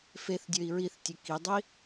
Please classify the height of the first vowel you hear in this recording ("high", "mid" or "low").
mid